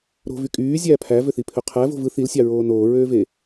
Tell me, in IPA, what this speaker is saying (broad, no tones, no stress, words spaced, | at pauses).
ɾo̤ vykʼyː zʲæːpʰæ vøθipʰøqʰæ vo̤vɯ θilsʲɑ ɹoːnoːɹøːve